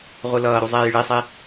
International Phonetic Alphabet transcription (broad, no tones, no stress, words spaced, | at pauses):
ʁʷɯlʌːɾu zˤeːjɭesˤe